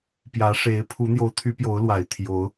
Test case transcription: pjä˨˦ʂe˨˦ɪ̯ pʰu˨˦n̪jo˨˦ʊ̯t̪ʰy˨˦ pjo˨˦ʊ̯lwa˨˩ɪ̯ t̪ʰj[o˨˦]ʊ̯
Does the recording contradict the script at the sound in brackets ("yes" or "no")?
no